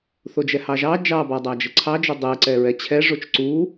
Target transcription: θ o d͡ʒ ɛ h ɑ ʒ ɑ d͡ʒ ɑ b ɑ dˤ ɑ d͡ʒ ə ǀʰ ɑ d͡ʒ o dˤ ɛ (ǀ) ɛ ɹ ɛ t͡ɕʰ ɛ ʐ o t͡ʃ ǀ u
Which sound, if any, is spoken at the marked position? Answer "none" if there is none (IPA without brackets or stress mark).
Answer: ǀ